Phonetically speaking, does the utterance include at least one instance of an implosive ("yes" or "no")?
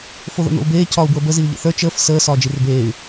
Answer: no